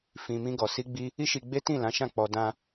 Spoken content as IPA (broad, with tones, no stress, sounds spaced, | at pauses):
f ĩ˨ m ĩ˧ ɡ ɔ˨ s i˧ ɡ͡b i˧ | i˦ ʃ i˧ ɡ͡b e˦ t ĩ˦˨ l ã˨˦ ʃ ã˦˨ k͡p ɔ˧ d ã˧